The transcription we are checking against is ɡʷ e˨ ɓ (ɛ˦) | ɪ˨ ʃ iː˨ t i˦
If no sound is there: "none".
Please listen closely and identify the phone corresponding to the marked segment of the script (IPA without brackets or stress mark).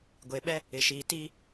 ɛ˦